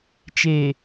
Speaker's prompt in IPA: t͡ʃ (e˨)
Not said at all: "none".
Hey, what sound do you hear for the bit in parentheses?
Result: e˨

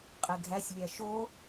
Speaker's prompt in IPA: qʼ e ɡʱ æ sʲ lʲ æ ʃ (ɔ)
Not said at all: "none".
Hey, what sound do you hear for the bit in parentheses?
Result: o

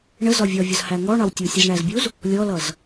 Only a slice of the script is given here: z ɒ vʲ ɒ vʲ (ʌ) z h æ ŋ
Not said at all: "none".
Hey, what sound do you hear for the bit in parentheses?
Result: ʌ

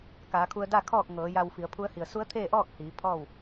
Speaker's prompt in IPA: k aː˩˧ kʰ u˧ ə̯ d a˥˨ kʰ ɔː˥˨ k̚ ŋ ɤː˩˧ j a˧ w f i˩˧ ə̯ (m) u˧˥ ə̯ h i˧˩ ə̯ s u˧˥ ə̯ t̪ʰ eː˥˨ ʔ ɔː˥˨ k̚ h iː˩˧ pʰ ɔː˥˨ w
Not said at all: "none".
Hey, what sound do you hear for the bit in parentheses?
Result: pʰ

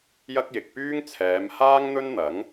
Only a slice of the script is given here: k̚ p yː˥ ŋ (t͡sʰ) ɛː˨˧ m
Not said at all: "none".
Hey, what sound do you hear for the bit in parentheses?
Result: t͡sʰ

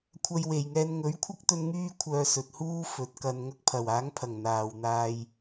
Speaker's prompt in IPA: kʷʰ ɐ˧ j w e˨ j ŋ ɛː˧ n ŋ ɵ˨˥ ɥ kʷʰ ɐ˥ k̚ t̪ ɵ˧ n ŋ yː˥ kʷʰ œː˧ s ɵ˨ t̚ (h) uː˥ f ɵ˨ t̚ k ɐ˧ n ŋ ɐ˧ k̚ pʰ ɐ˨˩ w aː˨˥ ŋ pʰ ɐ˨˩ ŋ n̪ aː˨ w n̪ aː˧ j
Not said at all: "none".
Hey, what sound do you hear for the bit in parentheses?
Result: h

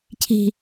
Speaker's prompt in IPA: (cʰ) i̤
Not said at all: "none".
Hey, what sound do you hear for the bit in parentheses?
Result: cʰ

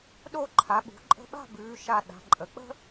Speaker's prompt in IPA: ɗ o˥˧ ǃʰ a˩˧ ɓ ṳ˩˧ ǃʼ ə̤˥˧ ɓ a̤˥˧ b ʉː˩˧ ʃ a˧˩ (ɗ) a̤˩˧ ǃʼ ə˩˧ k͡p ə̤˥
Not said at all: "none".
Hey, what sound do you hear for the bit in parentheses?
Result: ɗ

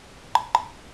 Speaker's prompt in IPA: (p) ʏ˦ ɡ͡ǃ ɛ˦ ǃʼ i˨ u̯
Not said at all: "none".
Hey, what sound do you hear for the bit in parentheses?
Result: p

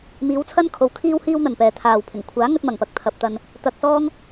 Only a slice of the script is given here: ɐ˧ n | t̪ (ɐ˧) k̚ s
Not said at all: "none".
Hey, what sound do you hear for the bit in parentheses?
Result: ɐ˧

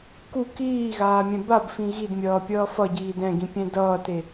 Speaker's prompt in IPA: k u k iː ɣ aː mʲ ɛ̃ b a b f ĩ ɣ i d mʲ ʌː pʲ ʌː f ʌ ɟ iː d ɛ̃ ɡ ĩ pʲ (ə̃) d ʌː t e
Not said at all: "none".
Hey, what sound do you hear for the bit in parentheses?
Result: ɛ̃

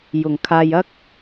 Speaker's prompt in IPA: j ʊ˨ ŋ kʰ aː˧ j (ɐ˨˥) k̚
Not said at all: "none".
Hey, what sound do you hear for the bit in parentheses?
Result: ɐ˥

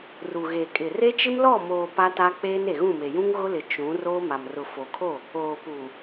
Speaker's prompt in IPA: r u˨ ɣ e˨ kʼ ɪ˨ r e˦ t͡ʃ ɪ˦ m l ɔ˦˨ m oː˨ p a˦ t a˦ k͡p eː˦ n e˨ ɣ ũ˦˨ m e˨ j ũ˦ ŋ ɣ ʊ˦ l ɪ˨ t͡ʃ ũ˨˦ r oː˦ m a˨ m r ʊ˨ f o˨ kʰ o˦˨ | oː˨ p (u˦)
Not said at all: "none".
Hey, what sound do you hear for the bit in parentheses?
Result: u˨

